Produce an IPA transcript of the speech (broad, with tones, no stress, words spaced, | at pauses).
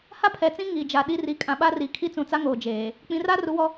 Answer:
ha˦pʰɛ˨t͡sĩ˦ ŋi˨d͡ʒa˨ɗi˦ ri˨˦ kʼã˨ɓa˦ri˨ kʰi˦t͡sũ˨t͡sa˦ ŋoː˨d͡ʒeː˨ | k͡pĩ˨ra˦ru˨˦wɔ˦